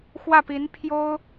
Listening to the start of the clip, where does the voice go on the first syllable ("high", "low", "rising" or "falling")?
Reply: falling